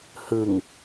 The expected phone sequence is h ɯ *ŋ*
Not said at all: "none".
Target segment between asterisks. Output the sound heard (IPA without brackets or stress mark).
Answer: ŋ